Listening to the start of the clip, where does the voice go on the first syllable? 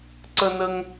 high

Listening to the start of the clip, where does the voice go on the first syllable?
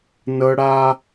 high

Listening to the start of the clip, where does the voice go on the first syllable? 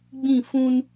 falling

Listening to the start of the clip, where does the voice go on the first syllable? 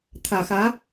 low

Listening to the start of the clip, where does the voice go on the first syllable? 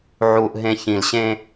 low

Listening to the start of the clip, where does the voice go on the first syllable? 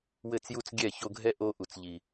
falling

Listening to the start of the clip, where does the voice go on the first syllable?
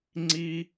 high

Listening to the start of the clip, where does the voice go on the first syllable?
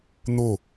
falling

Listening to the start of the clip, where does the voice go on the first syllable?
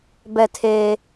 falling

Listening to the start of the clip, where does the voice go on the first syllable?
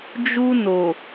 high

